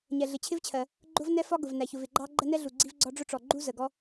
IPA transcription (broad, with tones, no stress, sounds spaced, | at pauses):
ɲ ɛ˩ ɮ ɪ˩ t͡ɕʰ ɪ˦ v t͡ɕʰ ɜ˩ | ɡ͡ǃ ʊ˦ v n ɛ˦ f ɒ˦ ɡ ʊ˩ v n æ˩ ç ʊ˩ v ɪ˩ ɡ͡ǃ ɑ˦ ɡ͡ǃ ə˦ n ɛ˦ ɮ u˩ ɡ͡ǀ i˦ v ɡ͡ǀ ɒ˦ ɖ͡ʐ ʊ˦ ʈ͡ʂ ɔ˩ ɡ͡ǃ u˦ z ə˩ ɡ ɔ˦